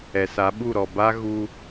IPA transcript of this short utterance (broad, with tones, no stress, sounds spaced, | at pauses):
ɛ˨ s a˨˦ ɓ u˦˨ ɾ ɔ˨ b a˦ ɣ u˦